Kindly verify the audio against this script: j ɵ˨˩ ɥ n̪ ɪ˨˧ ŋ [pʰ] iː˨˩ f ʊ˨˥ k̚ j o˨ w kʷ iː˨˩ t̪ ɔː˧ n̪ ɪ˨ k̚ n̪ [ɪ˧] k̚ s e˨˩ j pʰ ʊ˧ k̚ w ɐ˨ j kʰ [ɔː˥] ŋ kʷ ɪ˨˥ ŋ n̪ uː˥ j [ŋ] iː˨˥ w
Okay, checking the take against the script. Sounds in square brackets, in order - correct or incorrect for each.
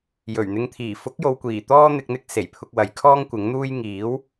incorrect: t̪ʰ, incorrect: ɪ˨˥, correct, correct

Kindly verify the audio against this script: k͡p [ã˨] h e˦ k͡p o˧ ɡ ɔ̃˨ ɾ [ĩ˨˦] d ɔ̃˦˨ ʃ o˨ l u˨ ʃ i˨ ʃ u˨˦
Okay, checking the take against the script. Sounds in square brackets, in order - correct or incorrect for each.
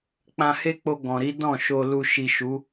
incorrect: ã˧, incorrect: i˨˦

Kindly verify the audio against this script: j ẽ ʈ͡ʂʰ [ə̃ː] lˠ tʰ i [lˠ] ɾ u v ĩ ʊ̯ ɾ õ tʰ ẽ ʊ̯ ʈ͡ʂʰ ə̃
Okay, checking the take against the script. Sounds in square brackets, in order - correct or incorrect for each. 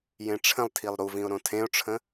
incorrect: ə̃, correct

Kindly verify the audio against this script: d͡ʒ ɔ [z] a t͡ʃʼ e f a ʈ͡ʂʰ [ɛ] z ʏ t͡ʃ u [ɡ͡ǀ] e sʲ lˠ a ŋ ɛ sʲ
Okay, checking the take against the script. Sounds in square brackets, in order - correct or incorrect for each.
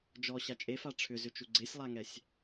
incorrect: ɕ, incorrect: ʏ, correct

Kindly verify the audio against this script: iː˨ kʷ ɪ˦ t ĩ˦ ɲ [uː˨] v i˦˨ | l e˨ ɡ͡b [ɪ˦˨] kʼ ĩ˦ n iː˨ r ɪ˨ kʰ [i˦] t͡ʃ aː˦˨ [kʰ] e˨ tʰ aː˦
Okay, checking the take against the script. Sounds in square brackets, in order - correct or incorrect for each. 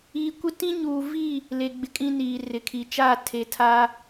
correct, incorrect: ɪ˨, incorrect: i˨, incorrect: tʰ

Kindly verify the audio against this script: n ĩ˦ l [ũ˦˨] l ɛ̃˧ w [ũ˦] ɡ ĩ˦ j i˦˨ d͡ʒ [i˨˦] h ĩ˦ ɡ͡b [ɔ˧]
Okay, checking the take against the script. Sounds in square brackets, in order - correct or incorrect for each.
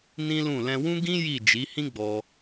correct, correct, correct, correct

